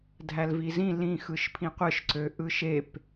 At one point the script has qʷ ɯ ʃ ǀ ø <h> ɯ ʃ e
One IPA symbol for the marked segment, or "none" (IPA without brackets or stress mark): ʔ